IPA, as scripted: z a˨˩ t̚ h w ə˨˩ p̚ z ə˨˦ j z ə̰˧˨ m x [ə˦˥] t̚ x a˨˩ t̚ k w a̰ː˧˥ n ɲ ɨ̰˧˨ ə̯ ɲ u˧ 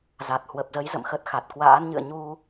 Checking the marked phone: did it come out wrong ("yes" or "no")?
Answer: no